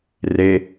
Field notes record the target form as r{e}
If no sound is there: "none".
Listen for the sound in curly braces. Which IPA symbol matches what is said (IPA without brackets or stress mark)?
e